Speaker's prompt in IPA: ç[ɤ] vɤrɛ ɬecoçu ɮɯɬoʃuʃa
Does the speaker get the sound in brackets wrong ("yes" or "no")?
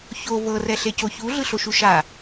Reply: yes